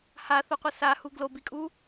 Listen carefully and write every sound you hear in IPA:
h a θ o qʷ ʌ s a h u ɡ l o b i kʼ u

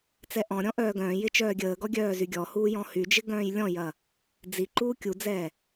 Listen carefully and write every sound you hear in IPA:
t͡s ɛ ʔ ɔ̃ ɾʲ ɔ̃ ʔ œː ɡ œ̃ː j ɪ t͡ʃ œː ɡʲ əː ɡ ɔ ɡʲ œː z y ɡʲ ɔ h uː j ɔ̃ h y d͡ʒ ɪ ɡ œ̃ː j lʲ ɔ̃ j ɐ | d͡z i ǃ uː kʲ u d͡z ɛ

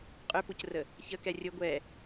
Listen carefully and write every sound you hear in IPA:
qʼ ʏ p u c r ə | ç ə k ɛ rʲ ə ɡʷ ɛ

